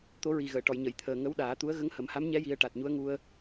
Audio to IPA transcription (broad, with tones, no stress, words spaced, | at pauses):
t̪o˧˥ɹi˨˩ ɣəː˨˩˨ʈɔ˨˩˨jɲə˨˩˨jt̪ʰəː˨˩ ŋə˧˥wɗaː˨˩˦t̪u˧˥ə̯ ɣə˧˥ŋhə˨˩˦mha˧˥mɲɛ˧˥ ji˧˥ə̯ ʈa˨˩t̚ɲu˧˥ə̯ŋu˧ə̯